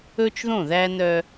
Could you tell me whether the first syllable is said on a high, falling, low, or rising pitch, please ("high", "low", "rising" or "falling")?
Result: high